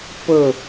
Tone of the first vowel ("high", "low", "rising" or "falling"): falling